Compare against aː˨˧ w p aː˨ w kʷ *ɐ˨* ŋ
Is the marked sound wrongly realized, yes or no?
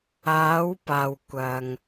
no